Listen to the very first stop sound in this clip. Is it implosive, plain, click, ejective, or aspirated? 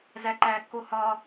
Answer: click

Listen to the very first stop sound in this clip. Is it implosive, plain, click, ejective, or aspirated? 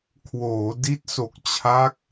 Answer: aspirated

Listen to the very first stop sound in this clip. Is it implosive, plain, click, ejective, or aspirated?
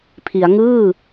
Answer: aspirated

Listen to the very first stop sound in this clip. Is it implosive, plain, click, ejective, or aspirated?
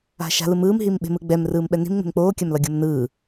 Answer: implosive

